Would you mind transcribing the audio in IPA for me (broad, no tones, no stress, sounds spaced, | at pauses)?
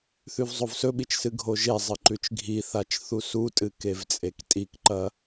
θ ʉ v zˤ o v s ɵ ɓ i t͡ʃ s ɨ ɡʱ o ʒ e zˤ ɨ ǃ ʉ t͡ʃ ɡʱ i θ a t͡ʃ θ u s u tʼ ɨ k e v t͡sʼ e k tʼ i k ǃ ɐ